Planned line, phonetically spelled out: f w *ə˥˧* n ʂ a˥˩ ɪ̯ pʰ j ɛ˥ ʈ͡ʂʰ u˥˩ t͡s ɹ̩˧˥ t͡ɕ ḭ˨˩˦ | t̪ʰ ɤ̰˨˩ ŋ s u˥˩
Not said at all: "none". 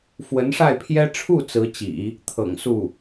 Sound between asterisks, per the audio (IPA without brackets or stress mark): ə˧˥